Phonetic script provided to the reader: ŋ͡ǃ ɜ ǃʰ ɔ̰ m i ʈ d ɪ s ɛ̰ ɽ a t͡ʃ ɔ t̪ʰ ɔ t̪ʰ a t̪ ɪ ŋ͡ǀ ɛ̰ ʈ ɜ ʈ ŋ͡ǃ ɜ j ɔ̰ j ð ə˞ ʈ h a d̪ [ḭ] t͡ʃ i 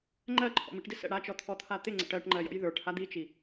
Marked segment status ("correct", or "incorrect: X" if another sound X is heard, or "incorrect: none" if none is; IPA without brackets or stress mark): incorrect: i